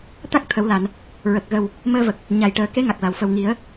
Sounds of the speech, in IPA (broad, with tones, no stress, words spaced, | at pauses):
t̪a˦˥k̚ t̪ʰə˨˩˦wla˨˩˨n | ɹə˨˩k̚ɣə˨˩w | məː˧və˨˩k̚ | ɲa˨˩jʈəː˨˩˦ ke˧˥ŋa˨˩k̚la˨˩˨wfə˨˩w ŋi˨˩˦ə̯